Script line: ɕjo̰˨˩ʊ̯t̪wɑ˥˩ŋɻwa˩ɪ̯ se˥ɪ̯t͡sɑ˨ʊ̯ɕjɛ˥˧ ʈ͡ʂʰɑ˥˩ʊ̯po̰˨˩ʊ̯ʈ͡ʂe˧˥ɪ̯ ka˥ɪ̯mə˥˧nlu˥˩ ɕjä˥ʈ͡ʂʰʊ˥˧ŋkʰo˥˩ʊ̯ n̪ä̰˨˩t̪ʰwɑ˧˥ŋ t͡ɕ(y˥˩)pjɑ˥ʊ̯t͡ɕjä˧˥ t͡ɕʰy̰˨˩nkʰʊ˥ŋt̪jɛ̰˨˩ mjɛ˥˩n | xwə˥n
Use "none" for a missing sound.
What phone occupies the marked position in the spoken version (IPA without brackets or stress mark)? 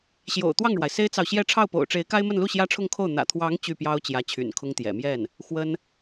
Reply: y˥˩